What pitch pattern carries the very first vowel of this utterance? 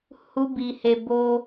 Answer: high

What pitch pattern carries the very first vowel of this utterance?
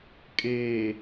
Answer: low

